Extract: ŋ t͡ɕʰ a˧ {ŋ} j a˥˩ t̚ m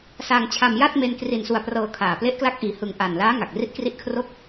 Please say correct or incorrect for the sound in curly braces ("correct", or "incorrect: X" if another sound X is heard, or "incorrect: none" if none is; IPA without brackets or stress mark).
incorrect: m